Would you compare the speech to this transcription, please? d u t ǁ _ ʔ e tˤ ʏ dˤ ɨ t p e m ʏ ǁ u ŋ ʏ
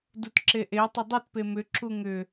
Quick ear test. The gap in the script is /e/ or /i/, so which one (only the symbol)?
e